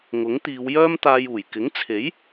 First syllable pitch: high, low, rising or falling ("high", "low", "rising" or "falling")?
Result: rising